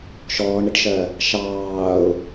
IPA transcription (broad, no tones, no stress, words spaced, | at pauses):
ʃɔːɳɾɪʈʃɜ | ʃɑːʊ̯